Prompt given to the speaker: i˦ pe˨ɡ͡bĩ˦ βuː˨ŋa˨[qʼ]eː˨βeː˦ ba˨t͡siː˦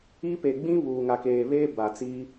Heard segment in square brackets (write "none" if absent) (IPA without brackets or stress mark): k